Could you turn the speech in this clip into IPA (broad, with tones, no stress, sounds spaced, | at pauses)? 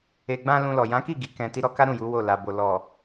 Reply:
e˨ ɡ͡b ã˧ l ũ˧ l ɔ˨ j ã˨˦ k i˦˨ ɡ i˨ k ɛ̃˨ t i˧ ɾ ɔ˧ k a˦ ɾ ũ˦˨ j u˨˦ w o˦˨ l a˨ b o˨ l ɔ˨